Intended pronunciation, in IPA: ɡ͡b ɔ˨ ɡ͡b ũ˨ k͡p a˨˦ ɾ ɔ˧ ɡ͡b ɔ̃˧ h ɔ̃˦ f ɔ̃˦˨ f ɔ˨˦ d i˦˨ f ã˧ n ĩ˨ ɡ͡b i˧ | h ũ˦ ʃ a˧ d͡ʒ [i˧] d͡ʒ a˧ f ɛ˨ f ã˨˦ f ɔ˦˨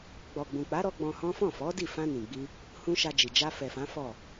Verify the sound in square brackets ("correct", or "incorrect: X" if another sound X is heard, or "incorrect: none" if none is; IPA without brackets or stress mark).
incorrect: i˨